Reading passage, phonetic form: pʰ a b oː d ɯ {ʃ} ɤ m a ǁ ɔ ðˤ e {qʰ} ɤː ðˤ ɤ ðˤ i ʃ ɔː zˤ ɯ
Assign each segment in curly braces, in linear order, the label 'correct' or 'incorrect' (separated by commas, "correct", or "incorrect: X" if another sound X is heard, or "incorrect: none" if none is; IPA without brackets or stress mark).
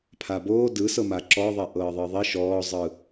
incorrect: s, incorrect: ʔ